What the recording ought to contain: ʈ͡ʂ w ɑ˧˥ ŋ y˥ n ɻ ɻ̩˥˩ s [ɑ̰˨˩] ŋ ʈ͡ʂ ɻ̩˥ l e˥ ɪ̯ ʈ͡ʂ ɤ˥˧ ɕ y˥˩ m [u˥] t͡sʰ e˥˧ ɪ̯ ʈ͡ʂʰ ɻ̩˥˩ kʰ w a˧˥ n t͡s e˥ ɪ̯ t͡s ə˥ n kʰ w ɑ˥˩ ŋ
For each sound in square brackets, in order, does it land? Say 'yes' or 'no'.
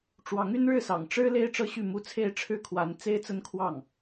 yes, yes

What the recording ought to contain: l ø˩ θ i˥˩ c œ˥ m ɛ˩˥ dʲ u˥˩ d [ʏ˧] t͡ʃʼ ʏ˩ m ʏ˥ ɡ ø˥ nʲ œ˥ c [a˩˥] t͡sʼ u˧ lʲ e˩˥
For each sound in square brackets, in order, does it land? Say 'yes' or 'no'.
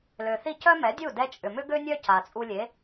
no, no

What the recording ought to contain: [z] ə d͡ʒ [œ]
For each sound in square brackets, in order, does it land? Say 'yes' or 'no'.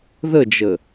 no, no

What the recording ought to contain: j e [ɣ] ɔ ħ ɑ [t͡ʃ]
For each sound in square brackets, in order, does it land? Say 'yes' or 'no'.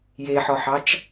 no, yes

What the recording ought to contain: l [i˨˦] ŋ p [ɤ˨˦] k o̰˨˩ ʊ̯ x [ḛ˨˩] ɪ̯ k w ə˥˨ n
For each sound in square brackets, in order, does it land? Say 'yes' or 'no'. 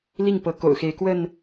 no, yes, no

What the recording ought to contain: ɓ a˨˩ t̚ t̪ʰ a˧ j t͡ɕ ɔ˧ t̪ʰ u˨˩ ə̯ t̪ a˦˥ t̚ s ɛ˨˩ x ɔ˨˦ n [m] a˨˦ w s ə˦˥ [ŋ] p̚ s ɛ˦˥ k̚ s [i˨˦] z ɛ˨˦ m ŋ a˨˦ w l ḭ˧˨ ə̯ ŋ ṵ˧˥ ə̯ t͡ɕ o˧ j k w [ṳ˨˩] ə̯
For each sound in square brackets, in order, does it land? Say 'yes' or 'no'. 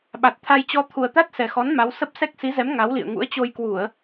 yes, no, yes, no

